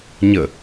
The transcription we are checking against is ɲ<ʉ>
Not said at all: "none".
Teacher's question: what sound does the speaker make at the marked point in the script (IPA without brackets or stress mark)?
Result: ə